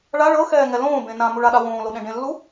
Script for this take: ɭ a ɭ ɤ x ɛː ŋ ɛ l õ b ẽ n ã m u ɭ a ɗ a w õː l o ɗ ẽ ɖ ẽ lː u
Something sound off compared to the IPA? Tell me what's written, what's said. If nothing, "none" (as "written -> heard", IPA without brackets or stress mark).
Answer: õ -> õː